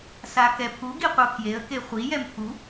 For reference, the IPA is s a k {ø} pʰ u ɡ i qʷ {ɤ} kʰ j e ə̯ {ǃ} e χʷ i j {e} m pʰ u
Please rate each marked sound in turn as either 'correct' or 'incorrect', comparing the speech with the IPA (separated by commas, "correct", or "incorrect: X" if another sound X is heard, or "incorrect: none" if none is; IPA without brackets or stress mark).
incorrect: ɛ, correct, incorrect: k, incorrect: ɛ